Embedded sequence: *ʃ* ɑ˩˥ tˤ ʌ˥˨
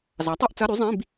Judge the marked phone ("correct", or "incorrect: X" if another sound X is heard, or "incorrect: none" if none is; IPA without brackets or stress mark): incorrect: z